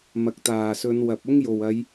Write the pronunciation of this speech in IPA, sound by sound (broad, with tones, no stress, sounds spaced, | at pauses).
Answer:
m ɐ˨ k̚ t̪ aː˨˩ s ɵ˨˧ n w ɐ˨ p̚ ʊ˥ ŋ j o˨˩ w ɐ˨˧ j